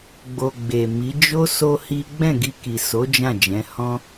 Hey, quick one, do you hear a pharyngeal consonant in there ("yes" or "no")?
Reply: no